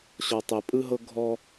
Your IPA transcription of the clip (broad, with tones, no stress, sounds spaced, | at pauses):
ɕ ɔ˨ tˤ e˨ pʼ ɯ˦ ɦ ɤ˦ ɡʱ ɔ˦